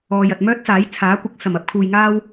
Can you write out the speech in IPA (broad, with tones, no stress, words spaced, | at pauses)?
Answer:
ɔː˨jɐ˨t̚ mœː˥t̚ t͡saː˨˥j t͡sʰaː˨˥kʷɪ˨˥k̚ sɐ˨˩mɐ˥p̚kʰuː˨jŋaː˥w